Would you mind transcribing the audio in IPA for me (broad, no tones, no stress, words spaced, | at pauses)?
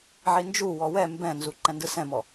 ʕind͡ʒuwɔ wɛ mbɛ̃nzu ǃɛ̃ndɯsɛ̃mɔ